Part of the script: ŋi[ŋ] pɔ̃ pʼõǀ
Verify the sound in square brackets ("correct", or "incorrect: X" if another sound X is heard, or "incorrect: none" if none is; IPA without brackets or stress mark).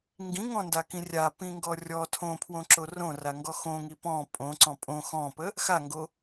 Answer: incorrect: none